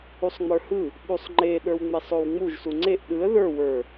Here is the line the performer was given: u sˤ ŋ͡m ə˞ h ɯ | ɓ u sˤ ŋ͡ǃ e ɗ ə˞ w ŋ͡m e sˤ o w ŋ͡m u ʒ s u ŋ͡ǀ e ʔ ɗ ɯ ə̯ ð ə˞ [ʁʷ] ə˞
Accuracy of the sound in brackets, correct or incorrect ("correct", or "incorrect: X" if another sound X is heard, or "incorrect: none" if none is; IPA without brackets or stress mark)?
incorrect: w